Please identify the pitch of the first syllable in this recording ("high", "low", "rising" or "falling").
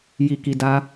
low